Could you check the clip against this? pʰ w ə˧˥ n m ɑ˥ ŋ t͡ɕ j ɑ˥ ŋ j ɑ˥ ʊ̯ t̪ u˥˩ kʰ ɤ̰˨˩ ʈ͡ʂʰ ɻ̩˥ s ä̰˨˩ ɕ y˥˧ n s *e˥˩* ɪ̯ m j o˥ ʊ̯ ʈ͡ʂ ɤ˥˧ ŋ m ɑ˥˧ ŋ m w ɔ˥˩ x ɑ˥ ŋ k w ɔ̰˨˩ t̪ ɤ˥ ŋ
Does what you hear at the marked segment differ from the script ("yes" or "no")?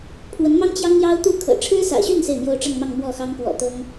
no